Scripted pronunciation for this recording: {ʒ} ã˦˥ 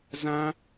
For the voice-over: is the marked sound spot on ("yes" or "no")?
no